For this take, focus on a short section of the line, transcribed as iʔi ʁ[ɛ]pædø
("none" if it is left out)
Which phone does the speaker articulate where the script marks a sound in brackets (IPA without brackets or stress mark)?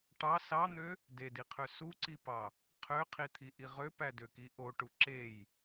ø